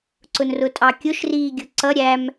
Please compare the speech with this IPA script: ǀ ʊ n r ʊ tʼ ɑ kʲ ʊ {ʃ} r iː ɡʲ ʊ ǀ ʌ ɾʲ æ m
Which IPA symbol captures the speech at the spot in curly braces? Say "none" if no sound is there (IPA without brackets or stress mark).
ʃ